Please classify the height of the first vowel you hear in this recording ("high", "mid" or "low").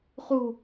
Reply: high